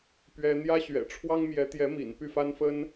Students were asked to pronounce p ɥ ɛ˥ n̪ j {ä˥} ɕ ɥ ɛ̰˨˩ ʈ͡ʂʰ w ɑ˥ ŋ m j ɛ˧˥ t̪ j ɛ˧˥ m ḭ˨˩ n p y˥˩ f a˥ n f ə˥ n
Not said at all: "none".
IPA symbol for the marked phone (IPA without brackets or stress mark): ä˥